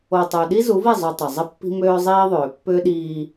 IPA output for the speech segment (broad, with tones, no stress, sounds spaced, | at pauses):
o˨ tˤ œ˨ ɗ i˦ z u˨˦ v i˦˨ zˤ u˨ tˤ ə˨ zˤ ə˦ pː i̤˦ m øː˦ zˤ iː˦ ðˤ øː˨ pː ʏː˦ ɗ iː˦